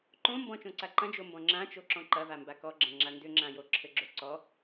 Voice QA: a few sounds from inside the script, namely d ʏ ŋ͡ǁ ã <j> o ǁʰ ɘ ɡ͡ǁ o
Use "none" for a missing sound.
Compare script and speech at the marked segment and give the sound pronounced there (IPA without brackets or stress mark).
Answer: j